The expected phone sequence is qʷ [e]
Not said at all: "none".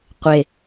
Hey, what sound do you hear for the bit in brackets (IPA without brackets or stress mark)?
e